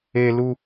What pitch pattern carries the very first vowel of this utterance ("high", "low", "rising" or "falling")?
high